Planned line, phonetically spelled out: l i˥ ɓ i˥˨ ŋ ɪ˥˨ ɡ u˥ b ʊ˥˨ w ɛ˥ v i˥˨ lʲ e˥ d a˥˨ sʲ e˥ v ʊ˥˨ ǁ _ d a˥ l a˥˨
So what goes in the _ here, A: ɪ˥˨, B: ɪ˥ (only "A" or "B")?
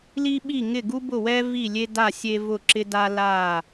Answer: B